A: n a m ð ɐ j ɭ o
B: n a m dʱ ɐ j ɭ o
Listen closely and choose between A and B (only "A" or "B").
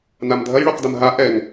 B